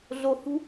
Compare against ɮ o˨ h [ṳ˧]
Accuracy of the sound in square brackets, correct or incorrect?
correct